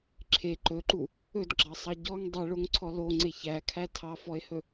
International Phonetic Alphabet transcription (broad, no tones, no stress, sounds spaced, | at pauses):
ǁʰ e ǃ ɵ ǃ u | ɵ d ɡ͡ǁ ɑ sˤ ɑ ɟ ɔ ŋ dˤ e ɭ o ŋ ǀʰ ɔ l o ŋ͡ǀ e ç æ kʰ æ tʰ ɑ f ɔ e̯ h ɵ